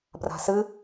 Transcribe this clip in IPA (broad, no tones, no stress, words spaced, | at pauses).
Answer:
bra̤sɨ